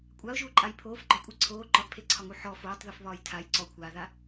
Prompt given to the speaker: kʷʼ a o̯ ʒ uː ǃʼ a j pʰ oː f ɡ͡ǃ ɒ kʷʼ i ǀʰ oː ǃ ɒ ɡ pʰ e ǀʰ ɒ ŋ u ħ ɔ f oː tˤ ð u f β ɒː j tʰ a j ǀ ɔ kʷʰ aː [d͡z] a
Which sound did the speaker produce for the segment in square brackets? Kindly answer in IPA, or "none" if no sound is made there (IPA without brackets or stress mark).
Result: ð